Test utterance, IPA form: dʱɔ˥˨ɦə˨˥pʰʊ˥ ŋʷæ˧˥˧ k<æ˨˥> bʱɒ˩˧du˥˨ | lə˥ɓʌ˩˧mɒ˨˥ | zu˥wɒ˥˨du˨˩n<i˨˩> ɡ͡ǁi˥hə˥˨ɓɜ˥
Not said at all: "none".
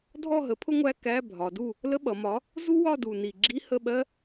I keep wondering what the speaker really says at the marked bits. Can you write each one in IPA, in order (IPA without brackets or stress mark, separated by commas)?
æ˧˥˧, i˨˩